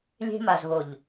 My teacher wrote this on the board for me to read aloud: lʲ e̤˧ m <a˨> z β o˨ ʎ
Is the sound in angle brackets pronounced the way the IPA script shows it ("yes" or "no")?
yes